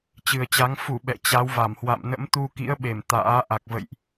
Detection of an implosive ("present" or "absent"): present